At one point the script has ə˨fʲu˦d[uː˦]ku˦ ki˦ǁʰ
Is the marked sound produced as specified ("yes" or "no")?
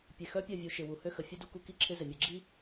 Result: no